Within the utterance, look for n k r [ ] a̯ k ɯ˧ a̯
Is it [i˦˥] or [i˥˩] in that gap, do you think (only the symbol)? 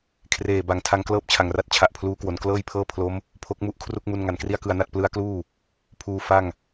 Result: i˥˩